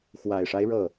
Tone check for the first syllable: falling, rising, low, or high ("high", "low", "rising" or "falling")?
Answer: low